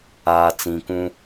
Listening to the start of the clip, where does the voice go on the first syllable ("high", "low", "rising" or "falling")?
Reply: low